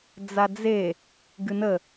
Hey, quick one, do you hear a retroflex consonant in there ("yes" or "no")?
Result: no